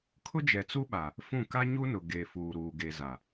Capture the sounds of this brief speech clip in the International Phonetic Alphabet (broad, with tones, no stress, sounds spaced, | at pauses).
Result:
kʰ ʊ˦ d͡ʒ ɛ˨ t͡s u˦ ɓ a˨ | f ũ˦˨ k a˦ ɲ u˦ n ʊ˨ ɡ e˨ f uː˨ ɾ uː˨ ɡ e˨ z a˨